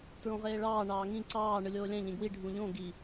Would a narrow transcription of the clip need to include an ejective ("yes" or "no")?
no